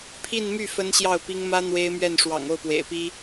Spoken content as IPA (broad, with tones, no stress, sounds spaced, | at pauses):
pʰ i˥˧ n m y˥˩ f ə˥ n ɕ j ɑ˥˩ ʊ̯ p i˥ ŋ m ä˥ n̪ w e˥ ɪ̯ m ɥ ɛ˥˩ n ʂ w ɑ̰˨˩ ŋ o˥˩ ʊ̯ p w ḛ˨˩ ɪ̯ p i˥